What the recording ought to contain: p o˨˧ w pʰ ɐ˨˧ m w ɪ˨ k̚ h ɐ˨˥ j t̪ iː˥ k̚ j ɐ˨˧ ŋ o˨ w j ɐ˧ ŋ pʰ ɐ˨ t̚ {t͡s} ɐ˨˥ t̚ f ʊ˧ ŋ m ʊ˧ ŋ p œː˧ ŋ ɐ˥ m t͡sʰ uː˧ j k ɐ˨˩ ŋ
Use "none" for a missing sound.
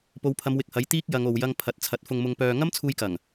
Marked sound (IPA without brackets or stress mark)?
t͡sʰ